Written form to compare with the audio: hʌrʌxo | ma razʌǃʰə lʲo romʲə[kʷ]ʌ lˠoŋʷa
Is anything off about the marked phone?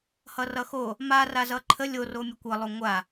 no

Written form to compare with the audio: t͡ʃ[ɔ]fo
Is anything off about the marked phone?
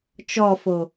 no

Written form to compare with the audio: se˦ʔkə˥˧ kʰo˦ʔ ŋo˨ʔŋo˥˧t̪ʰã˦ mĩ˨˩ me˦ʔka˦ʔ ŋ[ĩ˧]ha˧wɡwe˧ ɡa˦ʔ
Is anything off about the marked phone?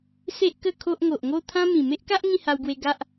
yes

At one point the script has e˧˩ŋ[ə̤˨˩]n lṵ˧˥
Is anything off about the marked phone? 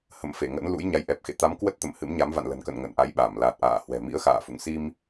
yes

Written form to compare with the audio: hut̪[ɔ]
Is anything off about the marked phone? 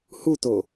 yes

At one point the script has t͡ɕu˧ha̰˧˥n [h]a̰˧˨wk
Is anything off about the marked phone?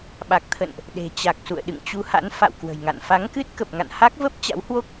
yes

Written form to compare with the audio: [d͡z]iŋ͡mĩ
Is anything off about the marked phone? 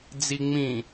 no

